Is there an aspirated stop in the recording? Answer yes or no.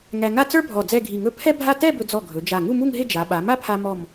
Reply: yes